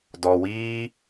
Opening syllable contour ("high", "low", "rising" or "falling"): low